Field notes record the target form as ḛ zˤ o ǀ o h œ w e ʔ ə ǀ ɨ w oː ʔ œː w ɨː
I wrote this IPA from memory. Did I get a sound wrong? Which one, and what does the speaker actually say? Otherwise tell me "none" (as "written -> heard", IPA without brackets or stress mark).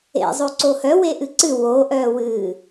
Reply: ə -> ɨ